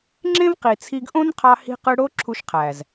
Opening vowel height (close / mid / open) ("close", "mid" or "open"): mid